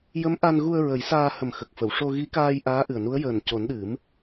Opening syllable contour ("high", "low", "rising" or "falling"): rising